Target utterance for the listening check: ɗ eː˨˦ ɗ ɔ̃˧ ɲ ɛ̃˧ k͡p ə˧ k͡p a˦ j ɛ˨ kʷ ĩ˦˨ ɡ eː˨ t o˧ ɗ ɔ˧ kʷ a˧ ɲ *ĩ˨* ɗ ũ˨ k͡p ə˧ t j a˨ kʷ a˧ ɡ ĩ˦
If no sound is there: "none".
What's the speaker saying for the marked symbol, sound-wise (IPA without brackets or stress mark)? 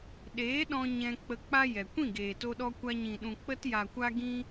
ĩ˨